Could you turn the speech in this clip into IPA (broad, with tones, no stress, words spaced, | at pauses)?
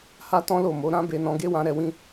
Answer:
ha˦tɔ̃˦lo˦˨mo˨˦ ɾã˦ be˧nɔ̃˧ ɡe˦wã˧ ɾɛ˧wĩ˦